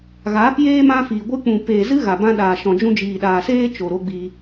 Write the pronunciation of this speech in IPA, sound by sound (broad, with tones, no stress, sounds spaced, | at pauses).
ɣ aː˨˦ p j eː˦ m ã˦ f iː˨ ɡʷ ɨ˦ k͡p ũ˨ p eː˨ z ɨ˦ ɣ a˨ b ã˦ ɗ aː˨ ʃ ɔ̃˨ d͡ʒ ũ˧ d͡ʒ iː˨ ɗ aː˨ s eː˦ t͡ʃ o˨ ɾ o˦ ɡ͡b i˧